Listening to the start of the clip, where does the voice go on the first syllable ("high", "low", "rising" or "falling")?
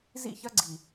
falling